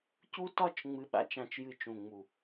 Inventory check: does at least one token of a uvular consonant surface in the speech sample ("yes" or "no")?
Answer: no